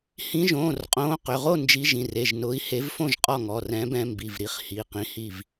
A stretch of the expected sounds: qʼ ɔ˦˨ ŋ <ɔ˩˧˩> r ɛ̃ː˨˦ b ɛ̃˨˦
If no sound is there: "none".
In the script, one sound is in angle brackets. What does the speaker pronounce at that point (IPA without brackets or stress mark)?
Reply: ɔ˩˧˩